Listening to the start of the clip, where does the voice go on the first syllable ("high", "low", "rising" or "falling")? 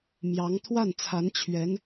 rising